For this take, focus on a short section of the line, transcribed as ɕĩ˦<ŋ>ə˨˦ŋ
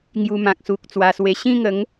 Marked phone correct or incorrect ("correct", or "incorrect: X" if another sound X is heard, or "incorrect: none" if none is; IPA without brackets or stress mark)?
correct